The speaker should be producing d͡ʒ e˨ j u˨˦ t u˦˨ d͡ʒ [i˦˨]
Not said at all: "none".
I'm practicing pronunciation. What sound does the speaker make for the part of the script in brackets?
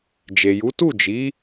i˨˦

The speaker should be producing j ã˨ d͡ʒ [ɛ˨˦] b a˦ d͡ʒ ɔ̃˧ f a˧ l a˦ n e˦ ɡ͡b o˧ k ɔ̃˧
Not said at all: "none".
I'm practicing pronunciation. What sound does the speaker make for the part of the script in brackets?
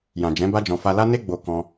ɛ̃˨˦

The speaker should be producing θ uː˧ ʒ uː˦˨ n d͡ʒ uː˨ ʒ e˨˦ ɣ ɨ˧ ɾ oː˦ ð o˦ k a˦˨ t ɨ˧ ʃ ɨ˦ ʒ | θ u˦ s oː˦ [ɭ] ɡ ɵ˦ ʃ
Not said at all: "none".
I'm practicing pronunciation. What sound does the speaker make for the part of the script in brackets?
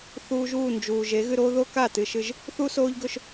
ʎ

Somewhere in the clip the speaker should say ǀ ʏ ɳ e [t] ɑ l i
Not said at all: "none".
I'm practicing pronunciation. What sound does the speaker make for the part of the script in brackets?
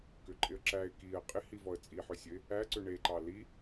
ǃ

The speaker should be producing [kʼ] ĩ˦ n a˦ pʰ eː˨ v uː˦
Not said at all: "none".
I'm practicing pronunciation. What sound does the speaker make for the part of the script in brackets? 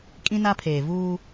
kʼ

